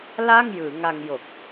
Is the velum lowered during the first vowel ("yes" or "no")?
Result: no